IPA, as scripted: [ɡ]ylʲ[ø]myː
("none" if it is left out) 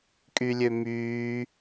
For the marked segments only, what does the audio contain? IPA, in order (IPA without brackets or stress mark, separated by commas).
kʼ, ø